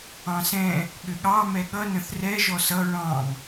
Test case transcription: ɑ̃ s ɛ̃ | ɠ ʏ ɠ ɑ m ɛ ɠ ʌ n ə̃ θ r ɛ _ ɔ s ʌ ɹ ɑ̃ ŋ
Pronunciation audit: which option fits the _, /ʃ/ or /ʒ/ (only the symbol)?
ʒ